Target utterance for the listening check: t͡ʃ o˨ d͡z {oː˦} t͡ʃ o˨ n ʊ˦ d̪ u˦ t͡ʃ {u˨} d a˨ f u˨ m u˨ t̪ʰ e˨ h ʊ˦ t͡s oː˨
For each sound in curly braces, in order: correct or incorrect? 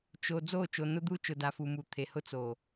incorrect, incorrect

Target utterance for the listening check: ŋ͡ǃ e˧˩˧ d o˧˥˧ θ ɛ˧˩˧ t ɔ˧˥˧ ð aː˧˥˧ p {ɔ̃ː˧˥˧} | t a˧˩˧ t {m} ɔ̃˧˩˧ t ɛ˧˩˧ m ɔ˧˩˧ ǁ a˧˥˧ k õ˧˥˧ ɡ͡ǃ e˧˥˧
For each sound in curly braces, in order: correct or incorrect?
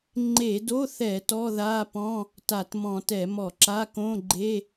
incorrect, correct

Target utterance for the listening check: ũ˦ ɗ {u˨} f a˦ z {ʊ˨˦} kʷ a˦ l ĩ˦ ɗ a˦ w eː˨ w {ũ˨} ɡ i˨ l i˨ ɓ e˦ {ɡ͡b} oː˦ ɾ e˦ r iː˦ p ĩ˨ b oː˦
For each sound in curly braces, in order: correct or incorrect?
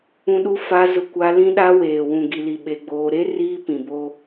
incorrect, incorrect, correct, correct

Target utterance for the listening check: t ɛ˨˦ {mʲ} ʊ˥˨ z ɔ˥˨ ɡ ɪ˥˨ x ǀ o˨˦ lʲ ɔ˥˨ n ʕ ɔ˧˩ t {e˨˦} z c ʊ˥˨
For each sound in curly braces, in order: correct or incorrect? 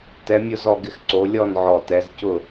correct, incorrect

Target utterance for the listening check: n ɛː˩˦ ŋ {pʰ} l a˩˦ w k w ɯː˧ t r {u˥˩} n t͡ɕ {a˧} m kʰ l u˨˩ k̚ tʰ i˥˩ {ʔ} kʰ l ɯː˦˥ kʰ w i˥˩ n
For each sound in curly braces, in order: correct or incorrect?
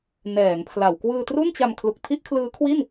correct, correct, correct, correct

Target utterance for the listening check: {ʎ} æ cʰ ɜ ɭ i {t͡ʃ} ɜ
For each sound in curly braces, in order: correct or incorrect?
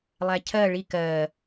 incorrect, incorrect

